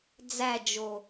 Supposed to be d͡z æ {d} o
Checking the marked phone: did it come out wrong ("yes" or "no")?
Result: yes